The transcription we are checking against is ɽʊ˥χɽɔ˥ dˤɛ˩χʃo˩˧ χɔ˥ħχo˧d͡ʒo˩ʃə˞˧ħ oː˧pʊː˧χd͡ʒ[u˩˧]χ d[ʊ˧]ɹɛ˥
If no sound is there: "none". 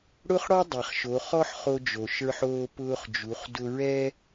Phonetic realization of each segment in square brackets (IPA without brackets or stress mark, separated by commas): u˩˧, ʊ˧